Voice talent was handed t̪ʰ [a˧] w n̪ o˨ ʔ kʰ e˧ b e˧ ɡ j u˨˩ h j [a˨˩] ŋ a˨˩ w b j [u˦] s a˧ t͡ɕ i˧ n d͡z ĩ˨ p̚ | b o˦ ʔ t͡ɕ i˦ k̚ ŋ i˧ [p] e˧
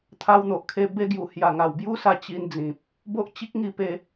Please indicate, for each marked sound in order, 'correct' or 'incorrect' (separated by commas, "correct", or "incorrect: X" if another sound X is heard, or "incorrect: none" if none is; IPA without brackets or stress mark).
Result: correct, correct, correct, correct